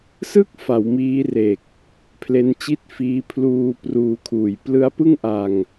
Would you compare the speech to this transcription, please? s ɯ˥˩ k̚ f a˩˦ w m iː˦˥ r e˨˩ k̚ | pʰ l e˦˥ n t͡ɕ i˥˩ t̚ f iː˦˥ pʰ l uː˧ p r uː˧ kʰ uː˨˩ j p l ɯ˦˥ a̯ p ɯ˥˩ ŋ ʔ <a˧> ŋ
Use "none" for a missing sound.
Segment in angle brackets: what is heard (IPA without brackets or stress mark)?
a˧